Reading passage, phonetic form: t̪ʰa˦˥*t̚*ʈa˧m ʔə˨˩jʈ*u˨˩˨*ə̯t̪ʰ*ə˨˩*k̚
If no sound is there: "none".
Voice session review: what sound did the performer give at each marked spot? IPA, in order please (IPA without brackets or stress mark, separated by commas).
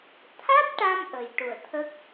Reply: t̚, u˨˩˨, ə˦˥